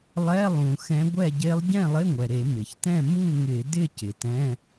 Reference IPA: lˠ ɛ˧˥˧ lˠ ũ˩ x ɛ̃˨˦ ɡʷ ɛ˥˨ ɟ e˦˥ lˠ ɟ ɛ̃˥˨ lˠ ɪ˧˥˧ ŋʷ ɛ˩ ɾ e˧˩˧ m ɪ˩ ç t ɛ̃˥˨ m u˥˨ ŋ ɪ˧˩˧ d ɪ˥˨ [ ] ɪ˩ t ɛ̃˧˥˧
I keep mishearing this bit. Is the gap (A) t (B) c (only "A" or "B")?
B